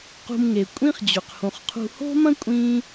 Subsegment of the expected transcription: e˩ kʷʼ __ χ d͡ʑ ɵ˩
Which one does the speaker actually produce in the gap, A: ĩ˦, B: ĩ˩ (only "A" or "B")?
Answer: A